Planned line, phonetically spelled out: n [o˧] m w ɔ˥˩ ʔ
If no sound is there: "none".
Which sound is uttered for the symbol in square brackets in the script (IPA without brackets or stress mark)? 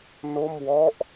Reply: o˥˩